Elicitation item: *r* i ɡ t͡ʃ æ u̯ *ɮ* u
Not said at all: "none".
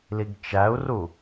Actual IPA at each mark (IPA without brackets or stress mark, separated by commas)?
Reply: l, r